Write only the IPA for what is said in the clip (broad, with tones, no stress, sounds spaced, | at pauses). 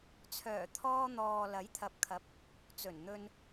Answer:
t͡sʰ œː˨˩ t̪ʰ ɔː˧ n̪ ɔː˨ l ɐ˨˥ j t̪ʰ ɐ˨˥ p̚ kʰ ɐ˨˥ p̚ | t͡s ɵ˨˩ n n̪ ɵ˧ n